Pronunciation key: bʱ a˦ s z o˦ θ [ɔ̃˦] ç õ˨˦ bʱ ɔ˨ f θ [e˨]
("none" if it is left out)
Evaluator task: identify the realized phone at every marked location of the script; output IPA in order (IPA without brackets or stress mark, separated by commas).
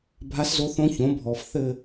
õ˦, ɘ˨